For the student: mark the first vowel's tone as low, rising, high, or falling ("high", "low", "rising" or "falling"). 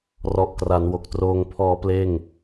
low